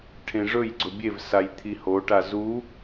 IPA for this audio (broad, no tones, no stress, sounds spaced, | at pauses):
ʈʰ ẽ ʐ ɵ j ɡ͡ǀ ɵ bʲ e v s a j t̪ʰ i h o ʈ a z u